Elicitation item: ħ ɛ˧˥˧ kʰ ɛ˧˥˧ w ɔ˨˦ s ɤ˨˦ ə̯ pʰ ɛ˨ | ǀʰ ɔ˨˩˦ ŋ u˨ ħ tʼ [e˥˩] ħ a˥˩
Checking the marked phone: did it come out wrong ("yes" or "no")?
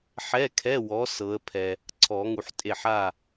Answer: no